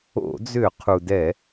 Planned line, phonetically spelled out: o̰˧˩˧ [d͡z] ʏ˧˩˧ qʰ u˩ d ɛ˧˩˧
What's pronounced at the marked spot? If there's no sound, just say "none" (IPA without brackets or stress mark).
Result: d͡z